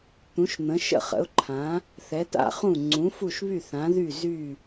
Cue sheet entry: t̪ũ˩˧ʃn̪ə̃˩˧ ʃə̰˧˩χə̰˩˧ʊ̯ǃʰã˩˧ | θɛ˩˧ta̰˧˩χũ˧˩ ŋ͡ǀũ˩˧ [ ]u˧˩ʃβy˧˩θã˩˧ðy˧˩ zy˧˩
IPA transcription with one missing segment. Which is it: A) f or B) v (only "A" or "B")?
A